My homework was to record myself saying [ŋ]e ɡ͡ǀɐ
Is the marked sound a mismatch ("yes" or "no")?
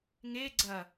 no